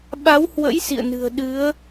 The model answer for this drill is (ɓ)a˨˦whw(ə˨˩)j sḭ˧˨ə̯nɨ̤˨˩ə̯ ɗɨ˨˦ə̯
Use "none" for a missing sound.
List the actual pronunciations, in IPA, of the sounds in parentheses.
ɓ, ə̰˧˥

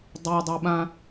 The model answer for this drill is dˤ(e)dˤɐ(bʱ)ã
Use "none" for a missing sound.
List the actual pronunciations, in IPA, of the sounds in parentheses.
e, ɓ

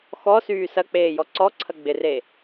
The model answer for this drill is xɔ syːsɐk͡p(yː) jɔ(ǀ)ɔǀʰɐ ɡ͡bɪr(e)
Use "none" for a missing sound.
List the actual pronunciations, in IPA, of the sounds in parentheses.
eː, ǀ, e

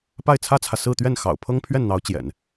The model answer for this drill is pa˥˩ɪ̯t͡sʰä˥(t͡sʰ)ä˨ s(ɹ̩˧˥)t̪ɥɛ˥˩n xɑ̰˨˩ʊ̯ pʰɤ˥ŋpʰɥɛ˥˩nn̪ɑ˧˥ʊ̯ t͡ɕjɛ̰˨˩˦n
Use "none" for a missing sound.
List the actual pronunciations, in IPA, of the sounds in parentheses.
t͡sʰ, ɹ̩˥˧

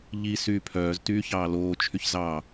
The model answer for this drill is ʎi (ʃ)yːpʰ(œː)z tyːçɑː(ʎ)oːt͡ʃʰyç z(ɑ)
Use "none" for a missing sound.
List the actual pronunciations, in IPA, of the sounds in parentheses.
s, œː, l, ɑ

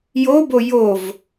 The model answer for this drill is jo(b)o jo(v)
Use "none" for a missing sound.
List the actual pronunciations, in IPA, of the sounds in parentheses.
b, v

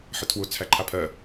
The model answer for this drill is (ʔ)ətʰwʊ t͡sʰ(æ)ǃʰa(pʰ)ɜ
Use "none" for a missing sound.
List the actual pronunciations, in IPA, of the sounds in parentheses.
ħ, æ, pʰ

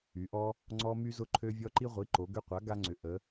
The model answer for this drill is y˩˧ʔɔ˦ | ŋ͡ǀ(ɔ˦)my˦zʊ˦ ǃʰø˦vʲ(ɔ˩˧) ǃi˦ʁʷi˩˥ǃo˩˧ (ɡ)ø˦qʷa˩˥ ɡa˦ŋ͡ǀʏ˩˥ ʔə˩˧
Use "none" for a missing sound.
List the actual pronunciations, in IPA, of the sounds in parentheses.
ɔ˦, ɔ˦, ɡ

